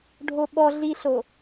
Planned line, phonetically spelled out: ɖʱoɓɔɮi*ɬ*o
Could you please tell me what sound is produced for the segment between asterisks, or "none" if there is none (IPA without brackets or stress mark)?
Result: ɬ